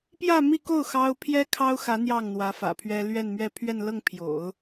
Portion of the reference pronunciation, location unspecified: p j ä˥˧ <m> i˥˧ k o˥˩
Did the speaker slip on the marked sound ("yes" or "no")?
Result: no